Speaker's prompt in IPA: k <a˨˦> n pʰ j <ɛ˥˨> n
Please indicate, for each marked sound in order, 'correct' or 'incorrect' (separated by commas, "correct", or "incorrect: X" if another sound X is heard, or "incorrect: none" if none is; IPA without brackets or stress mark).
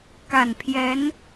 incorrect: a˨˩, incorrect: ɛ˨˦